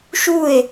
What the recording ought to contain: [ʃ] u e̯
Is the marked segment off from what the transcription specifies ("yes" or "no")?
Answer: no